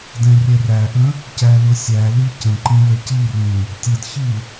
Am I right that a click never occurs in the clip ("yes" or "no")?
no